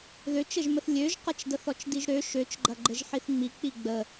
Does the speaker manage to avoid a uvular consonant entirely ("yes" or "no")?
no